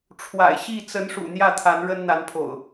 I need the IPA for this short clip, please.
ʈ͡ʂʰ w a̰˨˩ ɪ̯ ɕ i˥˨ t͡s ə˨˦ n ʂ ṵ˨˩ n̪ j ä˥˨ t̪ʰ a˨˦ n ɻ ə˦ n n̪ a˨˦ n pʰ o̰˨˩ ʊ̯

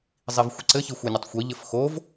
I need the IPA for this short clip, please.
zˤ i v xʷ ə ǀ ɘ ç i xʷ ɘ nʲ ɘ tˤ xʷ i ʎ ɘ f x o v

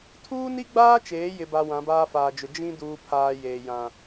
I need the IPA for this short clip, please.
tʰ uː˦ n i˦ ɡ͡b aː˦ t͡ʃ eː˨˦ j ɪ˨ b a˨ w ã˨˦ b aː˦ f aː˨ d͡ʒ ʊ˨ d͡ʒ ĩ˦ d uː˨ pʰ aː˨ j eː˨ j ã˨

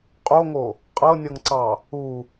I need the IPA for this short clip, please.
qʼ o ŋ o | qʼ ɤ nʲ ɤ ŋ ǀ ɑ | u

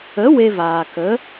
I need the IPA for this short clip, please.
ə˨˦ w e˧ v aː˨ k ə˨˦

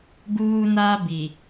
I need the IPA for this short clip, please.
ɡ uː˦ n a˦ b i˨

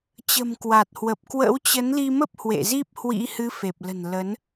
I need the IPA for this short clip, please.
t͡ɕ ə̤˨˩ m k w a˨˩ t̚ h w ə˨˩ p̚ k w ə̰˧˥ w t͡ɕ ə˨˦ n l i˧ m ə˦˥ p̚ h w ḛ˧˨ z i˦˥ p̚ h w ḭ˧˥ h ɨ˨˦ f e˨˩ p̚ l ə̤˨˩ n l ə˨˦ n

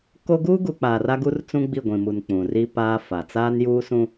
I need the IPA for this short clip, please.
k o˦ ɡ uː˦ ɡ u˨ k͡p aː˨ r a˦ ɡ u˦ r t͡s ũ˦ ɡ͡b i˦˨ ɡʷ ĩ˨ m u˨ n k͡p ũ˨ r i˦ p aː˦ f a˨ t͡s aː˦ n j uː˦ s ũ˦

